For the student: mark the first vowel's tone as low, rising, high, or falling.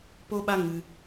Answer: high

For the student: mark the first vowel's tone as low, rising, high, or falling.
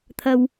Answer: low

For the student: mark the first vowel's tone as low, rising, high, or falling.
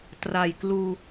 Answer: low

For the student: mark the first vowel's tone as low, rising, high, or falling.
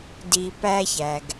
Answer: low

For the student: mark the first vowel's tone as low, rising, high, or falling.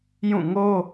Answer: falling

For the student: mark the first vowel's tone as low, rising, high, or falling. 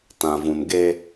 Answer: low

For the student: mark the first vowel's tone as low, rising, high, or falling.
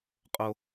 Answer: high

